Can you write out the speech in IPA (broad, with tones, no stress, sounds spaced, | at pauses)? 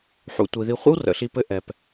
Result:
ħ ṵ˩ tʷ i˩ ð i˨ χʷ ə̰˥ w r ə̰˩ ɬ i˨ p ɘ˦ ʔ ɛ˩ p